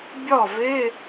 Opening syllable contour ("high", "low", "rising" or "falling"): falling